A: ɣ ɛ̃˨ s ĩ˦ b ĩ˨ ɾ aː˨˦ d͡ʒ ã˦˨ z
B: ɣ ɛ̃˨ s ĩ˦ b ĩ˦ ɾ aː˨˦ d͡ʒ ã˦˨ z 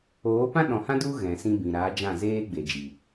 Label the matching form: A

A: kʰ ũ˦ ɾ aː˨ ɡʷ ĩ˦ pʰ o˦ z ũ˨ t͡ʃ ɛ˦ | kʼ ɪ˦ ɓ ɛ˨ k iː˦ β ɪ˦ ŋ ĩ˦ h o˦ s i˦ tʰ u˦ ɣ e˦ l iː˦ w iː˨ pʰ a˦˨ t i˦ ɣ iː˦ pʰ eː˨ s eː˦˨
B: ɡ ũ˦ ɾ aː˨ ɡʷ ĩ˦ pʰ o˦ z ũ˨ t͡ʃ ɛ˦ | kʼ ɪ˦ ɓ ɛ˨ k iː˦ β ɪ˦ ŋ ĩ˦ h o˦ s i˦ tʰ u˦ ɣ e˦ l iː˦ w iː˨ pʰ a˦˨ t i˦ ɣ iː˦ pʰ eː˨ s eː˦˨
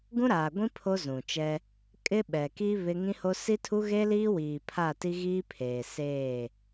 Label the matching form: B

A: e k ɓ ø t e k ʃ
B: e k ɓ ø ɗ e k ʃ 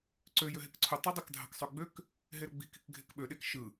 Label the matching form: B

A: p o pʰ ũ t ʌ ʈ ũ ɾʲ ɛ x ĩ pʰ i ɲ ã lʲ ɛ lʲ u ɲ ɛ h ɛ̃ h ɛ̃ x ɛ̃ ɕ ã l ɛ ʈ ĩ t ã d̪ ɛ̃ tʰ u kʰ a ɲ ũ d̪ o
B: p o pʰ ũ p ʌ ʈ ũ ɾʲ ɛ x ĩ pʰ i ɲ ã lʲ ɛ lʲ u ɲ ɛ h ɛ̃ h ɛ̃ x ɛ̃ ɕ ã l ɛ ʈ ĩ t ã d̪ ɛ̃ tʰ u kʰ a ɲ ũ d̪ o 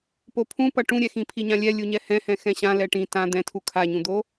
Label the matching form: B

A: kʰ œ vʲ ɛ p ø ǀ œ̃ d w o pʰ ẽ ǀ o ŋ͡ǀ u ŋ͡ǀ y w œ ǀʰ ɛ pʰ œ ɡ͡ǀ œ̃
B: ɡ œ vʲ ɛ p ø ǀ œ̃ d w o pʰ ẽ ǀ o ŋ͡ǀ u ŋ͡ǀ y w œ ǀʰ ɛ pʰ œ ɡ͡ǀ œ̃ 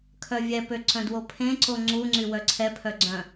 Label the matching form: A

